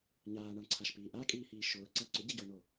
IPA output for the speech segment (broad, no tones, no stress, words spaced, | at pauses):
ɲaːɳaɳǀʰaʃpiː ʔakʼiːhiː ʃʊːǀa ǀʊɟiɟoːno